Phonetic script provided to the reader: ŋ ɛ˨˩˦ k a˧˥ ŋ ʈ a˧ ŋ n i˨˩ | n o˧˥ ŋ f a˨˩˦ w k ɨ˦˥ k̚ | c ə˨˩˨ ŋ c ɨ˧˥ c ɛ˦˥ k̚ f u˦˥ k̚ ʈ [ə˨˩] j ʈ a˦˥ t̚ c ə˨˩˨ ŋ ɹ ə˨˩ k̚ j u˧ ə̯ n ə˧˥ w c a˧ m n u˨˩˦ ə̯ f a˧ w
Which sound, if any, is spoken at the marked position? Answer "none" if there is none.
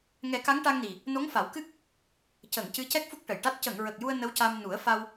ə˨˩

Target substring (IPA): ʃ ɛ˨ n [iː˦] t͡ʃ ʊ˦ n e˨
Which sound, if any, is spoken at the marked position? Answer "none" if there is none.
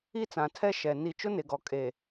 i˦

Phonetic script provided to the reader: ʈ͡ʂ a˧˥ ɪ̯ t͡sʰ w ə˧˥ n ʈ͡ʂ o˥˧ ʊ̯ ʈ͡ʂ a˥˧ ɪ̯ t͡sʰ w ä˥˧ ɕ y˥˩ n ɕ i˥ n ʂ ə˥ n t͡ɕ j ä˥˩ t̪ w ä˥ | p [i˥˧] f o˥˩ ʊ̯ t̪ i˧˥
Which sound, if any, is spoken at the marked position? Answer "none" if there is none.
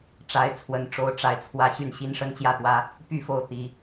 y˥˧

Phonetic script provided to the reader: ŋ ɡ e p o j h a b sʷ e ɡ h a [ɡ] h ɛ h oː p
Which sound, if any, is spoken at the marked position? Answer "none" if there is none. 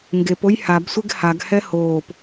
ɡ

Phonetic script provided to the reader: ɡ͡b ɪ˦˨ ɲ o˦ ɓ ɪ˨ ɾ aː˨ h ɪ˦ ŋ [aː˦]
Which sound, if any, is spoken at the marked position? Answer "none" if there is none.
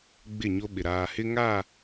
aː˦˨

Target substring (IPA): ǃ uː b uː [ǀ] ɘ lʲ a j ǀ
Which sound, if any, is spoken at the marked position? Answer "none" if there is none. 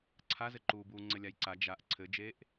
ŋ͡ǀ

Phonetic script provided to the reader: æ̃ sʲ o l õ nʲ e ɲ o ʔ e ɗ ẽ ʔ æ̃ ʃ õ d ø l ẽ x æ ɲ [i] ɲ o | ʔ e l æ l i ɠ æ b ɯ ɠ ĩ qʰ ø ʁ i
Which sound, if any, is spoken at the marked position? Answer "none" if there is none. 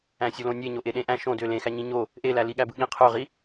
ĩ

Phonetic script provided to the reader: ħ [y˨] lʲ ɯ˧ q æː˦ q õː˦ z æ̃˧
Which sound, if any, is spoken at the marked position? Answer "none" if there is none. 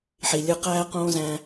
i˨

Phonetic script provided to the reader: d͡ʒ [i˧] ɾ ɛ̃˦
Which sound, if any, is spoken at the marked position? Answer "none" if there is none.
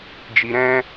i˧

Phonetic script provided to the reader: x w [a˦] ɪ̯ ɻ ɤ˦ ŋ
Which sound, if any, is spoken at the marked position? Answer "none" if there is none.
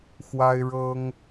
a˦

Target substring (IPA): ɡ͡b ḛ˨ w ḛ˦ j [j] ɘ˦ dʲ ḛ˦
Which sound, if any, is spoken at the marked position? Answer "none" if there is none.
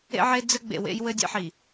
w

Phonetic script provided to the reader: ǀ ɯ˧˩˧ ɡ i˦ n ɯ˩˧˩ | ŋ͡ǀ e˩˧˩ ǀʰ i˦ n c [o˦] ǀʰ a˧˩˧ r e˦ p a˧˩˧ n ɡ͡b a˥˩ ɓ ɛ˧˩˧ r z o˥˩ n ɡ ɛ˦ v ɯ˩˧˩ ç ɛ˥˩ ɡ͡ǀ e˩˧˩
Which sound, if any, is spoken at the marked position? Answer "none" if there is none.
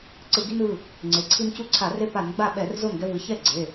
u˦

